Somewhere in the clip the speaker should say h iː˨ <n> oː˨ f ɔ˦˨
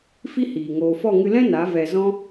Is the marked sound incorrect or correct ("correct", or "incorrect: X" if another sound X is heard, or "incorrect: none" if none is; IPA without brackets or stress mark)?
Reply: incorrect: ŋ